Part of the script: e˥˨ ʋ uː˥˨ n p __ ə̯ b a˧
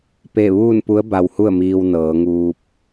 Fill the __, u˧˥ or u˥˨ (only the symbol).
u˧˥